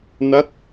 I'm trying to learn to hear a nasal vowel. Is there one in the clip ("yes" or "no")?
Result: no